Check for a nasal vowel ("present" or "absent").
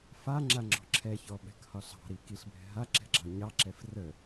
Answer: absent